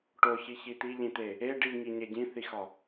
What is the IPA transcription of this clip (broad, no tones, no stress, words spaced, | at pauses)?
ʈoçi çit̪iʎĩt̪e | e ɖiŋi ɲeɟĩθixɒ